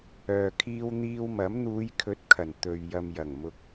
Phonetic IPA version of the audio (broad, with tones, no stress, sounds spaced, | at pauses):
œː˨ kʰ iː˧ w n̪ iː˧ w m ɐ˨˥ m n̪ uː˨˧ j kʰ ɵ˨˥ t̚ kʰ ɐ˨˩ n t̪ ɵ˨ ɥ j ɐ˨ m j ɐ˨˩ ŋ m ʊ˨ k̚